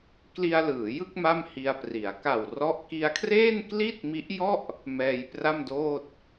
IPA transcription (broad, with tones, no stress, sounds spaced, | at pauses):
k l i˧ a̯ l ɯː˩˦ j ɯ˥˩ k̚ m a˥˩ m h i˧ a̯ p r i˩˦ a̯ k aː˨˩ w r ɔ˦˥ ʔ k i˧ a̯ kʰ r eː˥˩ n k l i˥˩ t̚ m i˦˥ ʔ j ɔ˥˩ ʔ | m ɛː˧ j p r a˥˩ m d oː˥˩ t̚